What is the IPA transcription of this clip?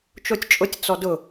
t͡ʃ o tʲ t͡ʃʼ ʊ tʲ t͡s ɔ d ʊ

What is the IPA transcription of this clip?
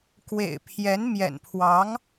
k w ḛ˨˩ ɪ̯ pʰ j ɛ˧˥ n m j ɛ̰˨˩ n pʰ w ɑ˧˥ ŋ

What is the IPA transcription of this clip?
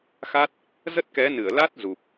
x a˦˥ t̚ | z ə˦˥ t̚ k ɛ˨˦ n ɨ˧˩ ə̯ l a˦˥ t̚ z u˨˩ p̚

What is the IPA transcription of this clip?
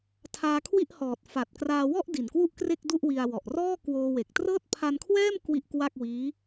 tʰ aː˧ kʰ w i˥˩ ʔ h ɔː˨˩ t̚ f a˨˩ t̚ k r aː˧ w ɔ˥˩ ʔ d i˨˩ n k w u˥˩ ʔ k r e˥˩ k̚ d u˥˩ ʔ w i˧ a̯ w ɔ˨˩ ʔ r ɔː˥˩ k w oː˧ w e˨˩ k̚ t r ɤː˥˩ t̚ pʰ a˧ n kʰ w ɛː˥˩ m k w i˥˩ ʔ k w a˥˩ k̚ w iː˦˥

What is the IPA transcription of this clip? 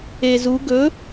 e z u ɡ ɵ

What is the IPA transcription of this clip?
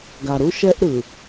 ɡ a˨ ɾ u˦ ʃ ɛ˦ ʔ ɾ ɯ˨

